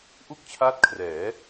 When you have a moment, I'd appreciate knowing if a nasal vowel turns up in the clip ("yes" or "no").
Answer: no